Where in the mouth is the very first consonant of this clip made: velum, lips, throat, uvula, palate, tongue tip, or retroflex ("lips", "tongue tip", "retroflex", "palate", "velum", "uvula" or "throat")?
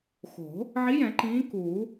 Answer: velum